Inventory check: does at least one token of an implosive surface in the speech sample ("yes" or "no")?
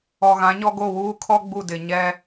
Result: no